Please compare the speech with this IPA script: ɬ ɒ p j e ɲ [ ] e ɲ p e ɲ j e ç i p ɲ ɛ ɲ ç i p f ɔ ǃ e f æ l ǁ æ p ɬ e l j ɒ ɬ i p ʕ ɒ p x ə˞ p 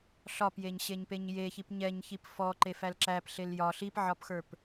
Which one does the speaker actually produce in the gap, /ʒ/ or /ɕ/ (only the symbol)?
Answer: ɕ